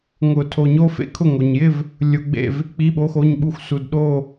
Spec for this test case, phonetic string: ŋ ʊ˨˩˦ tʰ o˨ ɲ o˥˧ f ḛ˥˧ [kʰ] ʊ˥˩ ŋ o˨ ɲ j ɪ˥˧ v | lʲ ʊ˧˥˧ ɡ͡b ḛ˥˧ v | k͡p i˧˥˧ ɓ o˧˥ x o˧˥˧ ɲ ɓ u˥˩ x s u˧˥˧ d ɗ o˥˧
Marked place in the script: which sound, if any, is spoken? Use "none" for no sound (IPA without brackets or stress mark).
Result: kʰ